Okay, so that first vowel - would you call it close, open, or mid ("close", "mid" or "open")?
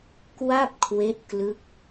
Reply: open